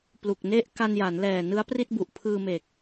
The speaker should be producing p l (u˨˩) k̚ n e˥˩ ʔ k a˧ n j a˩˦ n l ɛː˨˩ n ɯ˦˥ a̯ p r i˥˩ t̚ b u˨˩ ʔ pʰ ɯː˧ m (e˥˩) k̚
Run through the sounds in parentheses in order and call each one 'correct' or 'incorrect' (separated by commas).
correct, incorrect